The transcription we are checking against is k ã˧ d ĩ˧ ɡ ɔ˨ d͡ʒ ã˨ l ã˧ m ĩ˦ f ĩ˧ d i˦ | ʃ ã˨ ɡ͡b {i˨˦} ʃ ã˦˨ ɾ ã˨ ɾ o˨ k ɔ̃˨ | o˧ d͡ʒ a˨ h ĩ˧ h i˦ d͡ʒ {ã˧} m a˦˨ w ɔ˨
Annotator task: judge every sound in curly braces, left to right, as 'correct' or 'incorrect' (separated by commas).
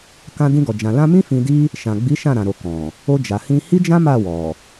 correct, incorrect